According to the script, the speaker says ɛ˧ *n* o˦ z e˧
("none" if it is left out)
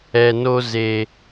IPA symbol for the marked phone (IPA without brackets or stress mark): n